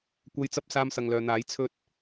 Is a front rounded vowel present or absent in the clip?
present